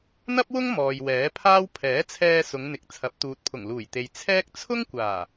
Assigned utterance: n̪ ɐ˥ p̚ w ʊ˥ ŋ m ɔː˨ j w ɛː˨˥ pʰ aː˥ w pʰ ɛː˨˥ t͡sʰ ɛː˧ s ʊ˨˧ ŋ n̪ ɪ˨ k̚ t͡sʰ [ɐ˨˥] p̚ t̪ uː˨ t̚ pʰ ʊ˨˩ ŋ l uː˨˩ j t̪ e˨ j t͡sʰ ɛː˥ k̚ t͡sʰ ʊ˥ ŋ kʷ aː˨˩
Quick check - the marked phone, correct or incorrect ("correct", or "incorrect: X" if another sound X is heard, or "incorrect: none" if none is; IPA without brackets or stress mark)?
correct